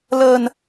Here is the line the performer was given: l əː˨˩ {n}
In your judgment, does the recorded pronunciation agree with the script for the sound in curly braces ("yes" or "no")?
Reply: yes